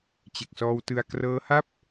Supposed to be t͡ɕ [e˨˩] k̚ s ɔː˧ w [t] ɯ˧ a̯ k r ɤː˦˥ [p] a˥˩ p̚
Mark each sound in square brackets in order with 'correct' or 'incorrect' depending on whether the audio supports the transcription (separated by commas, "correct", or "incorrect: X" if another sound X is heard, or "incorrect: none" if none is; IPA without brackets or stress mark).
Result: correct, correct, incorrect: h